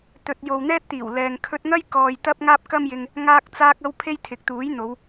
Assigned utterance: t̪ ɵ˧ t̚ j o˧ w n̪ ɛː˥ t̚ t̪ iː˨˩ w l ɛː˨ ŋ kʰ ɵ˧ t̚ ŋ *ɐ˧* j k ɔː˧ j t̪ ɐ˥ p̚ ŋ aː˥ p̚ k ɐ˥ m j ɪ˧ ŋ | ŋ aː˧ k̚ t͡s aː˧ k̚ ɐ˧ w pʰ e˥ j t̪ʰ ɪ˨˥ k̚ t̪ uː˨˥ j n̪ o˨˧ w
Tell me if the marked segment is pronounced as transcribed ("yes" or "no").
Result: no